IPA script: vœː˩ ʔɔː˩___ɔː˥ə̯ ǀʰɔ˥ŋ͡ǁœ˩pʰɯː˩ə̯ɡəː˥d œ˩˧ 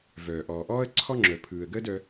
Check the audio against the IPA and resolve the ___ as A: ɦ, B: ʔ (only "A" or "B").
B